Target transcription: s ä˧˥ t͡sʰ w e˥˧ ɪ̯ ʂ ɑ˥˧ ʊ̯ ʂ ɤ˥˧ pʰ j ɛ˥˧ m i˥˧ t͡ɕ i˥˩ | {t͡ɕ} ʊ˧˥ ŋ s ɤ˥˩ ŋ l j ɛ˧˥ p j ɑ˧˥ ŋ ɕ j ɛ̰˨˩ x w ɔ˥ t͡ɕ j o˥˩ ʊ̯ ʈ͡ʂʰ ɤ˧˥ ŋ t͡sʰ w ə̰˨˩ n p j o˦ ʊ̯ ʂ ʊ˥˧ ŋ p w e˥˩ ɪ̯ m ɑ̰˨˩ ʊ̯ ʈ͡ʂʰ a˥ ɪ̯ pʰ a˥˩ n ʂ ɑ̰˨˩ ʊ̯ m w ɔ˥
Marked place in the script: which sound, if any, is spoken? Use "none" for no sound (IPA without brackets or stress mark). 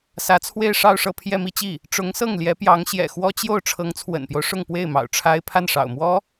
ʈ͡ʂ